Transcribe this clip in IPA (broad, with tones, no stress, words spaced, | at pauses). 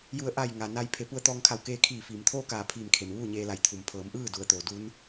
ju˧˩ə̯ ʔa˧˩j ŋa˩na˧j pʰe˩˧pu˧ə̯t̪ɔː˧ŋ kʰa˧˩wkeː˧kʰiː˧˩fiː˩m t̪ʰoː˥˨kaː˧˩ pʰiː˧˩mkʰe˩mʋuː˥˨ ɲeː˧la˧˩jt̪ʰu˩m pʰɤː˩˧mʔɯː˥˨du˩ə̯ t̪oː˩du˧˥n